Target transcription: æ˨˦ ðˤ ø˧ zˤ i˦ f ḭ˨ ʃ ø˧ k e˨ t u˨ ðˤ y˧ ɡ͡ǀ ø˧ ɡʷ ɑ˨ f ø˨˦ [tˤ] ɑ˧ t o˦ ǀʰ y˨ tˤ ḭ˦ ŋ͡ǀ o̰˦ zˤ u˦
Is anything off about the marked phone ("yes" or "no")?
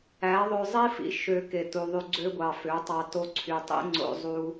no